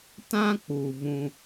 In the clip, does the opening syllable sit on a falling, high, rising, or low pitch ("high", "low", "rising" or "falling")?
high